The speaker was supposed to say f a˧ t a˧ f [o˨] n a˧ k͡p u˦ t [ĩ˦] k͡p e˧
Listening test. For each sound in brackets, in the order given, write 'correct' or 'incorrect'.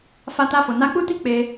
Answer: correct, incorrect: i˦

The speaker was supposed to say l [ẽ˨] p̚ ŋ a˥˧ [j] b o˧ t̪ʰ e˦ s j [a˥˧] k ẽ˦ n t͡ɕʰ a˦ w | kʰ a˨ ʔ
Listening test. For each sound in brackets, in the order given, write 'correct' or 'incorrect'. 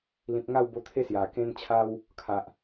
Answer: incorrect: ĩ˨, incorrect: w, incorrect: a˨˩

